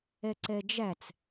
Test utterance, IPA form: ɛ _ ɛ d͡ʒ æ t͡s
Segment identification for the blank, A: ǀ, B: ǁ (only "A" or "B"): A